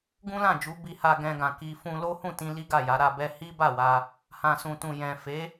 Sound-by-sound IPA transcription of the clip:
ɡ ũ˦ l ã˦˨ d͡ʒ u˨˦ b i˧ h a˧ ɡ ɛ̃˧ ɡ ã˨ k i˧ f ũ˧ l o˦ h ũ˦˨ t ĩ˧ l i˦ ɡ a˦˨ j a˨˦ ɾ a˧ b ɛ˦ h i˦ b a˦˨ w a˧ | h ã˨ s ũ˨ t ũ˨ j ɛ̃˨ f e˨˦

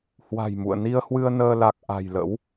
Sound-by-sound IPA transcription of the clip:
h w a̤˨˩ j m ṵ˧˨ ə̯ n i˧ ə̯ h w ɨ˧ ə̯ n əː˧ l a˨˩ k̚ ʔ a̤˨˩ j l ə̰˧˥ w

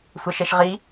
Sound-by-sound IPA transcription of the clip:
sʷ ɐ ʃ ɛ ʃ ʁ i

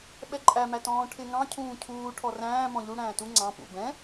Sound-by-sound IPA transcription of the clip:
ɓ ɛ ǃʼ æ m æ t ɔ̃ː ʈʰ ɪ ŋ ɑ̃ cʰ ũː cʰ uː ʈʰ ɔ r æ̃ː m ɔ̃ ʎ u ɽ æ̃ː t u ŋ͡ǀ ɑ̃ p ṵ b ɛ̃

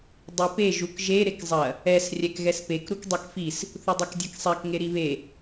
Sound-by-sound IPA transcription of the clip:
dˤ i p e ʒ u k ʒ e ɾ e k zˤ ɐ | ɛ s rʲ ɛ k ɣ ɛ s p e k ɾ u k dˤ ɛ k f i s | θ u dˤ ɛ k dʲ e k sˤ ɛ k ŋ e ɾ i β e

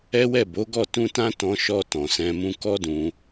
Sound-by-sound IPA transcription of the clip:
ɛ˦ w ɛ˦˨ b o˨˦ ɡ ɔ˦˨ t ũ˧ t ã˦ t ɔ̃˧ ʃ ɔ˧ t ɔ̃˨ s ɛ̃˧ m ũ˧ k ɔ˦ d ũ˧

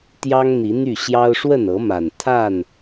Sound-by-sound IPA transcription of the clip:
t̪ j ɑ˦ ŋ n̪ i˨˦ n̪ y˥˨ ɕ j ɑ˦ ʊ̯ ʂ w ə˥˨ n ɤ˨˦ m a˨˩ n t̪ʰ a˥˨ n

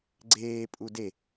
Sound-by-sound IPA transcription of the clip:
ɡ͡ǀ eː pʼ u d e

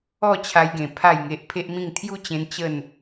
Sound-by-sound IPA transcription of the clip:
ɔ˥˧ t͡ɕʰ a˧ j ɡ ẽ˨˩ pʰ a˥˧ j ŋ e˦ ʔ pʰ e˦ ʔ m ĩ˥˧ ŋ t̪ʰ j u˦ t͡ɕ ẽ˧ n t͡ɕ ə˥˧ n

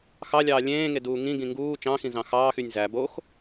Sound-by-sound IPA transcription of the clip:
x ɑ lʲ ɑː lʲ ẽː ŋ e d uː ŋ ĩ ɡ ĩ ŋ ɡ uː t͡ʃ ɑ̃ x ĩ z ɑ̃ x ɑː x y nʲ z æ b o x

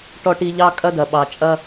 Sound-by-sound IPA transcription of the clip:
ʈ ɔ˧ ʈ i˧ ʎ ɑ˦ kʼ ɐ˦ d ɐ˨ ɓ ɑ˨ t͡ʃʼ ɐ˧

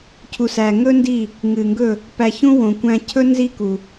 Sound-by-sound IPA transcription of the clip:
cʰ u˨ s æ˨ ŋ ɵ˦ n d i˦˨ | ŋ ɨ˨ ŋ ɡ ɵ˦˨ | p æ˧ ç ũ˦ w õ˨ kʷ æ̃˧ cʰ ɵ˦ n z i˦ k u˨

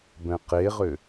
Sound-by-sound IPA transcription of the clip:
b ɛ̃ q e ʁ ʏ

